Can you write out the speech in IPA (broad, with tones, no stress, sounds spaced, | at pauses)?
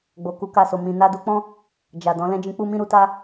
ɡ͡b o˨ k u˨˦ k a˧ s o˨ m ĩ˨ n a˧ d u˧ k͡p ɔ̃˦ | d͡ʒ a˨ d ɔ̃˨˦ l ɛ̃˦ d͡ʒ ĩ˧ k͡p u˦ m ĩ˦ ɾ u˧ t a˦